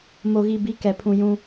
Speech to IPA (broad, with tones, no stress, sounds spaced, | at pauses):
m o˨ ɣ i˨ b i˨˦ k ɛ˨ pʰ ũ˨ j ũ˦